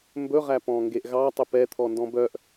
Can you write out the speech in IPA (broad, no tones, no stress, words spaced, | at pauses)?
mbɵʁæ pɔ̃ŋɡeʔɣɑtˤɵp ɛ t̪ʰɔndɔ̃bœʔ